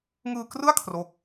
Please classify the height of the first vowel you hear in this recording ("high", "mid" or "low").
high